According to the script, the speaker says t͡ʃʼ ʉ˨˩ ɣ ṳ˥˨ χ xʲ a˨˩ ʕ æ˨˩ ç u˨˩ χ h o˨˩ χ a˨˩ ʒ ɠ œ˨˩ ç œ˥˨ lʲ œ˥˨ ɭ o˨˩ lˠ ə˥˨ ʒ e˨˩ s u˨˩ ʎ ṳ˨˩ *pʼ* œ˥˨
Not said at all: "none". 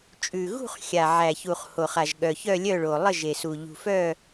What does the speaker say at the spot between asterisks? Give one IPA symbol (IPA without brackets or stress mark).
f